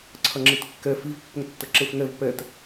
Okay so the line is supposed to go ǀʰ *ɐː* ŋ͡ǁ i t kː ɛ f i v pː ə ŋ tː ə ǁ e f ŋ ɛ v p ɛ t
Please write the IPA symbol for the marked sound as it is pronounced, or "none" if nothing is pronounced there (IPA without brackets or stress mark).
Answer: ɐ